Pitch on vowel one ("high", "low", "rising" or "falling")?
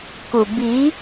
low